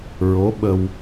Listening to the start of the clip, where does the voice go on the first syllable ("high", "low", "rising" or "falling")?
rising